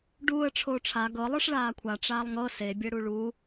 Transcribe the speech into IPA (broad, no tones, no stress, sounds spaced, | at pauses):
ɖ uː ə̯ ʈ͡ʂʰ oː ʈ͡ʂʰ a ɡ ɤ lˠ ɯ ʂ ɭ aː kʷʰ a ʈ͡ʂ aː lˠ ŋ ɤ s e bʲ ɛ ɽ u ɭ u